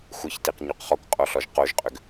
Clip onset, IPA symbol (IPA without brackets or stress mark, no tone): xʷ